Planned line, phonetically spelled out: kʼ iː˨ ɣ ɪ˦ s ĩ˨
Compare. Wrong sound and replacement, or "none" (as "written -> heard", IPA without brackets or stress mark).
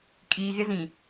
s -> z